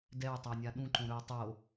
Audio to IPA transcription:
d ɛ w tˤ æ nʲ a ɗ ũ ǃ õ ɾ ɵ w tˤ o

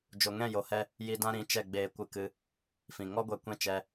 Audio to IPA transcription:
d͡ʒ o˨ ŋ ɛ̃˦˨ j o˨ h ɛ˧ | j i˧ d ã˦ ɾ ĩ˨˦ t͡ʃ ɛ˦˨ ɡ͡b eː˧ kʷ ɨ˧ k ɨ˧ | f ĩ˨ ŋ ɔ˦ ɡʷ ɛ˧ kʷ ɛ̃˦ t͡ʃ ɛ˧

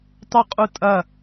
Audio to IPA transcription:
tˤ y qʼ u tʼ ɐ

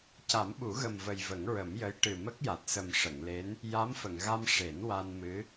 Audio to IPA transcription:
c a˨˩˦ m ɓ u˨˩˦ ɣ ə˨˩ m v ə˨˩ j v ə˨˩˦ ŋ ɹ ə˨˩˦ m j ə˧˥ j ʈ ɨ˨˩ m ə˦˥ k̚ j a˨˩ t̚ s ə˨˩ m ʂ ə˨˩˨ ŋ l e˧˥ n | j a˧˥ m f ə˨˩˨ ŋ ɣ a˧ m ʂ e˨˩˦ n w a˧ n m ɨ˧˥

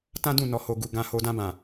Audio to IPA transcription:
t ã˦ d ũ˦˨ n ɔ˨ h o˨ ɡ u˨ ɡ ã˧ h o˧ d ã˧ b ã˨

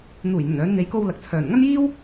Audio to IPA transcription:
n̪ uː˨˩ j n̪ ɵ˨˩ n œː˨˧ n n̪ e˨˧ j k o˧ w l ɐ˨ k̚ t͡sʰ œː˨˩ n ŋ ɐ˥ n j iː˥ w

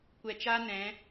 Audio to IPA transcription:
kʷ ɛ˧ t͡ʃ a˦ n ɛ̃˨˦

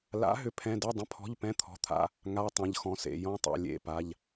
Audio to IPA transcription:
l a̰˨˥ ɦ ʏ˧˥˧ pʰ ɛ̃˧˥˧ d ɛ˧˥˧ dˤ ə̃˧˥˧ pʰ ɔ̤˧˥˧ ʎ p ɛ̃˧˥˧ t̪ʰ ɔ̤˩˧˩ t̪ʰ a̰˧˥˧ | ŋ a˧˥˧ tˤ ɛ̃˩˧˩ ʎ x ɔ̃˩˧˩ s ḛ˩˧˩ j ɔ̃˧˥˧ tˤ ḛ˩˧˩ lʲ ḛ˩˧˩ p a˩˧˩ ʎ

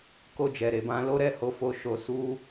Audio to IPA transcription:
k o˧ d͡ʒ ɛ˨ ɾ e˨ b ã˧ l o˦ ɾ ɛ˦˨ h o˧ f o˧ ʃ o˧ s u˦

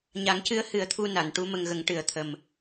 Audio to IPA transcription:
ɲ a˨˩˦ ŋ c ɨ˧˥ ə̯ h ɨ˨˩˦ ə̯ t̪ʰ u˧ n a˨˩˨ n ʈ u˧˥ m ə˧ ŋ ɣ ə˨˩˦ ŋ ʈ ɨ˨˩˦ ə̯ t̪ʰ ə˨˩ m

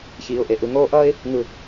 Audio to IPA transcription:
ç iː˨ ʊ̯ ʔ e˨ ʔ ɯ˧ ŋ oː˦ ʔ ʌː˦ ɪ̯ | ŋ ɯ˨

